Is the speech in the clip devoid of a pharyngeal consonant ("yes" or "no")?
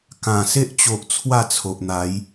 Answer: yes